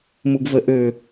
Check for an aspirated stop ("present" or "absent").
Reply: absent